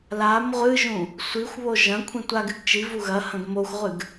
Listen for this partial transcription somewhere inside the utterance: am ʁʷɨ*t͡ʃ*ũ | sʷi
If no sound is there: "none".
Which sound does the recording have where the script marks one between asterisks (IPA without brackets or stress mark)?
ʒ